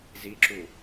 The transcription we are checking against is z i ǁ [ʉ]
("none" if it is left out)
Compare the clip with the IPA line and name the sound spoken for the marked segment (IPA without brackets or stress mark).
u